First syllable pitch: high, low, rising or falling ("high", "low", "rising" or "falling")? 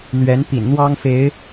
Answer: rising